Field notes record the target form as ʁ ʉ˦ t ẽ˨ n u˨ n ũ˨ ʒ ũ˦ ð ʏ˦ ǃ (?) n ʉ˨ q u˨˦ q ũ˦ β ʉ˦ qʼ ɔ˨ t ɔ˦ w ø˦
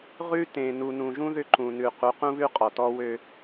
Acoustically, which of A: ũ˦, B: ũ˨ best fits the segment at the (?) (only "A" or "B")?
B